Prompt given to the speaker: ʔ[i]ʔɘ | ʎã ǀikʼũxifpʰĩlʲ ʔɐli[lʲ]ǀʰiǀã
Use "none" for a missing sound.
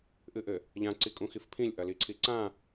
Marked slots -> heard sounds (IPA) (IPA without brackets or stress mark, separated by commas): ɨ, none